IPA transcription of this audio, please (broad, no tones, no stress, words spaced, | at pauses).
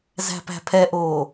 zæ̤pæ̤pʰɛʔoː